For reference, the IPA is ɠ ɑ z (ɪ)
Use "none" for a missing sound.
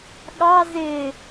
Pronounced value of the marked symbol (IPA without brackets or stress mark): ɪ